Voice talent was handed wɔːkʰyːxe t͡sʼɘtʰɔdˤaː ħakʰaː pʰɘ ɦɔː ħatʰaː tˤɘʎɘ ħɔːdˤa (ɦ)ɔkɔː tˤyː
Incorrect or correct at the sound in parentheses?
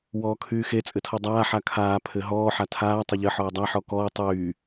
incorrect: ħ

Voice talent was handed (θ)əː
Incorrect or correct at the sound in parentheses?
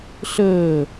incorrect: ɬ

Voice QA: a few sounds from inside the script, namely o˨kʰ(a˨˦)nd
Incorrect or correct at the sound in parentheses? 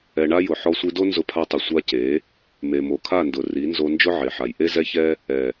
incorrect: a˦˨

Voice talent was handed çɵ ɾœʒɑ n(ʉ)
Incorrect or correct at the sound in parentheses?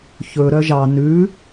correct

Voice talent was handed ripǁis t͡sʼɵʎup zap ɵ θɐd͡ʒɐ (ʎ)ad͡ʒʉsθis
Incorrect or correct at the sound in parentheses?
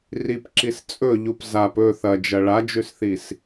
incorrect: ɭ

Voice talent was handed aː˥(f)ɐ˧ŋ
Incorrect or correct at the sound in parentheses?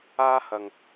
incorrect: h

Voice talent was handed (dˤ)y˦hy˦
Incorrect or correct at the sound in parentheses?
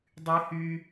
correct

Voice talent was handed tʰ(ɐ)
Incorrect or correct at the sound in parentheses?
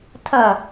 correct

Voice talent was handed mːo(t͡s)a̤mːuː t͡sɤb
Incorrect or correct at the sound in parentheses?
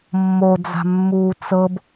incorrect: d͡z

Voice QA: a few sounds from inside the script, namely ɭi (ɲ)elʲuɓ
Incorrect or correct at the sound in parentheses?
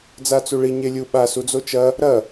correct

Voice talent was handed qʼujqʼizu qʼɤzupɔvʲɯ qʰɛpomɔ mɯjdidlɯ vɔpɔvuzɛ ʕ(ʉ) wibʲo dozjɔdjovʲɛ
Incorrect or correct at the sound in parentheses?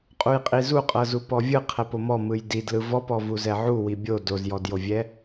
incorrect: u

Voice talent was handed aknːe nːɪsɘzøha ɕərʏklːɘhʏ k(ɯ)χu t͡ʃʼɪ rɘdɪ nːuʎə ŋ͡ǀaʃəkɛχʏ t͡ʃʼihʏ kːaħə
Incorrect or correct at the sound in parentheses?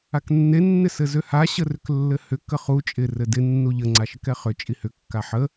incorrect: ə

